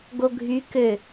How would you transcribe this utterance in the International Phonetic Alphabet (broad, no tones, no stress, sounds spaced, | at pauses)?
ɡ o ɡʱ y k ø